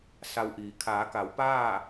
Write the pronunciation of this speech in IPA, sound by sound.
s a˧ w ʔ iː˩˧ kʰ aː˩˧ k a˩˧ w p aː˥˨

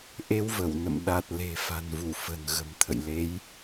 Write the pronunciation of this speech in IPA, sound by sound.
ʔ e˧ w v ə˧˩ w n ə̰˧˨ m ɗ a˨˩ t̚ l e̤˨˩ f a̤˨˩ n v u˧˩ f ə̤˨˩ n ɣ ə̤˨˩ m t̪ʰ ə̰˧˨ j l e˨˦ j

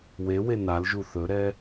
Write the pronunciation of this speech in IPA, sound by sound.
w e w e n a l ʒ u θ ɵ ɾ ɛ

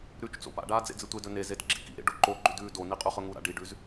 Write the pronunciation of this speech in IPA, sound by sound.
ɾ ʉ t͡ʃ t͡s o̰ p a̰ ɖ aː d͡z ḛ d͡z ɨ tʷ e d ɵ n e z e d ɡ͡ǁ i k ḭ ɾ ḛ ɖ o ǃ o ɡ͡ǃ ʉ d ʉː d o n i qʼ ʉ χ ɵ ŋ u ɾ a̰ ɖ i ɖ ʉ z

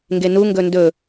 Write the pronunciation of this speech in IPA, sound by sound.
ŋ ɡ e n u ŋ ɡ ɵ n d ɵ

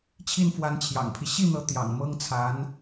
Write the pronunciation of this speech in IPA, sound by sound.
t͡ɕʰ i˥˩ n f w a˧˥ n t͡ɕʰ j ɑ̰˨˩ ŋ pʰ i˦ ɕ i˥˩ n̪ ɤ˧˥ t̪ j ɑ̰˨˩ ŋ m ɤ˥ ŋ t͡sʰ a˧˥ n

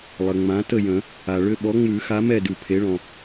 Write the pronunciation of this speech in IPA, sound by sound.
lˠ ə˩ ŋ͡m ã˨˦ t ə˥˨ j ə̃˨˩˦ | a˩ ɭ ʏ˥˨ ɓ ɔ˨˦ ŋ͡m ʉ˨˩˦ x a˨˦ m ɛ˥˨ d ʉ˩ pʰ e˨˦ ɭ ɔ̃˩

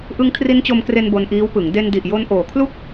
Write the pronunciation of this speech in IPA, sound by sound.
ʔ ɯ˦˥ ŋ kʰ r i˦˥ n t͡ɕ o˧ m k r e˧ n b o˧ n ʔ iː˦˥ w p ɯ˩˦ ŋ d e˧ n d i˨˩ ʔ j o˧ n ʔ oː˩˦ kʰ l u˥˩ k̚

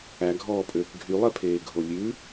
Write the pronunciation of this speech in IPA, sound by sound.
æ ɡʱ ɔː pʼ øː k ɡʱ y lˠ ɛ pʰ eː ɡʱ o lʲ ʉ

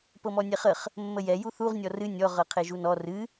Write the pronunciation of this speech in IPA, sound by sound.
p ɤ m ɔ nʲ ɛ χ ə χ | mː ə j ɛ j u θ u ʁ nʲ ɔ r ɨ nʲ ɔ ʁ ɤ qʰ e ʒ u n ɔ r ɨ

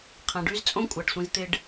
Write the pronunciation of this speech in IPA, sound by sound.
qʰ ã˨ ɖ y˦ z t͡sʼ õ˦ kʷʼ a˨ ɖ sʷ ĩ˦ z t̪ ɪ˦ ɖ

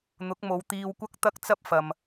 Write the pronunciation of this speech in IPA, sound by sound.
n̪ ʊ˨˥ k̚ m o˨˧ w t̪ iː˧ w kʷ ɐ˥ k̚ t̪ ɐ˥ k̚ t͡s ɐ˥ p̚ f ɐ˨ m

